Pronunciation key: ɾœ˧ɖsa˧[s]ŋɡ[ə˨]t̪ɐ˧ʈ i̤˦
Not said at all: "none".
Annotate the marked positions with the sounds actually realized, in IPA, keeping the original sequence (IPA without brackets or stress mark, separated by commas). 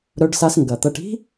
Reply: s, ɐ˨